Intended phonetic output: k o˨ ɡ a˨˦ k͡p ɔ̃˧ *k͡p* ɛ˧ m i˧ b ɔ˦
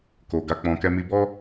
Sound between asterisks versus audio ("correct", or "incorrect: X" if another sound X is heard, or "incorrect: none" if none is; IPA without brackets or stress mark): incorrect: k